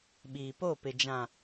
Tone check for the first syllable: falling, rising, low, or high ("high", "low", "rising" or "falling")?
low